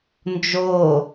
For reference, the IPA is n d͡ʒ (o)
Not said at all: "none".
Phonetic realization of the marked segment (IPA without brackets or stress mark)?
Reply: o